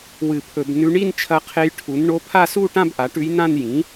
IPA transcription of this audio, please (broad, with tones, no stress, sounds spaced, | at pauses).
w ɨ˧˩˧ pʰ ɵ˧˩˧ b n ʉ˧˥ ɳ i˥˧ n t͡ʃʰ ɐ˧˥ qʰ e˧˥ j ʈʰ u˩˥ n ɳ o˧˥ pʰ a˥˧ s u˥˧ ʈ ã˥˧ b ʔ a˩˥ ʈ ʉ˧˥ j n ã˥˧ n j ĩ˩˥